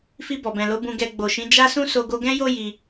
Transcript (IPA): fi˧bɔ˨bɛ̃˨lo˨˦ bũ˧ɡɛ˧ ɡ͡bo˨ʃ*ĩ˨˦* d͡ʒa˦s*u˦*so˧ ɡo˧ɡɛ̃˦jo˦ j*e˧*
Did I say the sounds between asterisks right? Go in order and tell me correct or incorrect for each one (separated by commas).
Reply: correct, incorrect, incorrect